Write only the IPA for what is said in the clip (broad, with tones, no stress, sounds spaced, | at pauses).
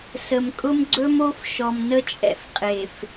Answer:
s ə˨ m kʼ ʊ˦ m ɡ͡ǀ ɵ˦ m o˦ f ʃ ɔ˨ m n ə˦ t͡ʃʼ ɛ̰˦ f qʼ e˨ f